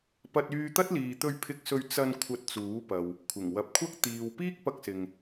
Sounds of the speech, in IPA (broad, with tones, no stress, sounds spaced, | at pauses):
p ɐ˧ t̚ yː˧ t̪ ɐ˥ t̚ l iː˨ t̪ ɵ˧ ɥ pʰ ɪ˧ k̚ s ɵ˧ ɥ t͡s ɐ˧ n kʷʰ ɐ˧ t̚ t͡s uː˨˥ p ɐ˨ w | kʷʰ ɪ˨˩ ŋ w ɐ˨˥ p̚ kʷʰ ɐ˥ k̚ t̪ iː˨ w p iː˥ k̚ p ɐ˧ k̚ s ɪ˨ ŋ